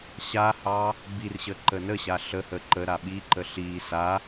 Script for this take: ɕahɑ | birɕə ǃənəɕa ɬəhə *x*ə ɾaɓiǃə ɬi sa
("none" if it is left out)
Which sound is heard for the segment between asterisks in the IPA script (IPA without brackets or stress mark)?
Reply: ǃ